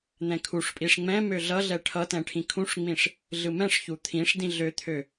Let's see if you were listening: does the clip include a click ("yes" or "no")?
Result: no